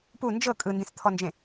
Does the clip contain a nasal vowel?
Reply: yes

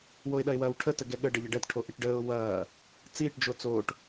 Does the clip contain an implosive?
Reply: yes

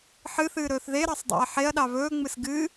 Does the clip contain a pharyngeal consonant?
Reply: yes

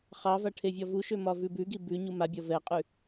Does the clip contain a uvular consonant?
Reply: yes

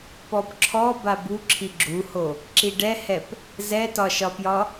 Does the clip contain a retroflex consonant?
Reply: yes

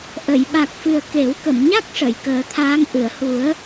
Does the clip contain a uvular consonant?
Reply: no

